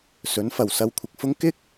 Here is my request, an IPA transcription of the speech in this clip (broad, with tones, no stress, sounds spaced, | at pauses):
s ɵ˨˥ n f ɐ˨˩ w s ɐ˧ w kʷʰ ɪ˨ k̚ f ʊ˥ ŋ k ɪ˥ k̚